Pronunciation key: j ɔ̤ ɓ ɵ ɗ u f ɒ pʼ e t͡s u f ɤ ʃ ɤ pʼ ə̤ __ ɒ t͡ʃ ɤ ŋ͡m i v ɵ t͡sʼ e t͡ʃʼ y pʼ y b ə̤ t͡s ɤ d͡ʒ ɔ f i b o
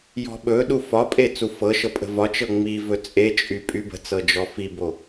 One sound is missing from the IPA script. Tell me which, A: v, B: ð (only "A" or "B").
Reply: A